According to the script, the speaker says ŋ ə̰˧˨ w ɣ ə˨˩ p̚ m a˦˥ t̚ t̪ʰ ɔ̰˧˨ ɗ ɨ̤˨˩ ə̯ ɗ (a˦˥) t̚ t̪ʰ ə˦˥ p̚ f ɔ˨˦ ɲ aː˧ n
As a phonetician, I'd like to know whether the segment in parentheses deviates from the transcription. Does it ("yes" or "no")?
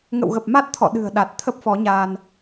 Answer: yes